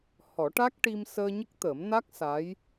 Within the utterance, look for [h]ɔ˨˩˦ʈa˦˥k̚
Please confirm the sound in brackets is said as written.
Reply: yes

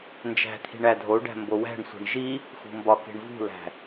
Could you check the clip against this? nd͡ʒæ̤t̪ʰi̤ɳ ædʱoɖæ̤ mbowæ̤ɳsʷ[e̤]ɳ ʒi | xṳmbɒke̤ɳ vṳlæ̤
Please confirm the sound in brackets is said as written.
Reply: yes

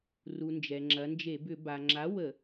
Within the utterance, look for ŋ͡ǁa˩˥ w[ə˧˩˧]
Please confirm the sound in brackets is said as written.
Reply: yes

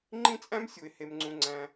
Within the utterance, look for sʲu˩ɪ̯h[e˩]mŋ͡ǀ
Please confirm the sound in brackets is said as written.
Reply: yes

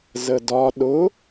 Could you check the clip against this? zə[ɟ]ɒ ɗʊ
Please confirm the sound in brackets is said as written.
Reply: no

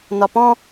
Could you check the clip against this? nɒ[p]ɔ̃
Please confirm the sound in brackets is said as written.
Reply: yes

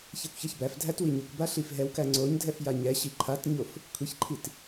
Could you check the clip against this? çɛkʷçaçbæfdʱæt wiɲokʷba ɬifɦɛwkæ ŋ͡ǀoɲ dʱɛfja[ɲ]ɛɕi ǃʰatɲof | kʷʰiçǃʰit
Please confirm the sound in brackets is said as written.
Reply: yes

